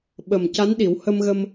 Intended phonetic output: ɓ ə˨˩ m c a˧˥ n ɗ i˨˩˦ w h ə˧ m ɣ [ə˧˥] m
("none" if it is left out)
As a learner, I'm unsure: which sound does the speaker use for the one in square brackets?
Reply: ə˧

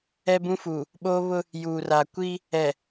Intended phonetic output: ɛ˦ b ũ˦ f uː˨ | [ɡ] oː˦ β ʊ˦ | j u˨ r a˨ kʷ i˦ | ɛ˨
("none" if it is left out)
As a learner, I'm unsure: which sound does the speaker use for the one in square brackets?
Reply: ɓ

